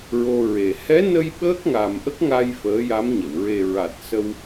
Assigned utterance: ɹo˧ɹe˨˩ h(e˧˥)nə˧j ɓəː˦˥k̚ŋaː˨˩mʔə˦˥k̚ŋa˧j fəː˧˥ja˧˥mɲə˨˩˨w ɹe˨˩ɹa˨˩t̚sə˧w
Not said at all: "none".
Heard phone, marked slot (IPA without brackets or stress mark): ɛ˧˥